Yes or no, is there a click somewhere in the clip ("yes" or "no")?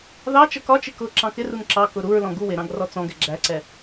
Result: yes